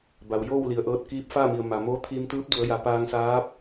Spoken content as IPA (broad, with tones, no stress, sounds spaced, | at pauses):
b a˩ w j oː˥˨ w l i˩ ə̯ ʔ ɤː˧ t̚ k iː˧˥ p̚ f a˥˨ m i˩ ə̯ m a˩ m oː˧˥ t̪ʰ iː˧ m t̪ ɯː˧˥ p̚ d u˩˧ ə̯ j a˩˧ p aː˧ ŋ s aː˧˥ p̚